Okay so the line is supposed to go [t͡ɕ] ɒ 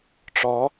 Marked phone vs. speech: incorrect: ʈ͡ʂ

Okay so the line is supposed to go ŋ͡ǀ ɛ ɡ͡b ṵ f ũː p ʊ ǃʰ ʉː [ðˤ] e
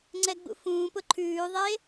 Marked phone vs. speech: correct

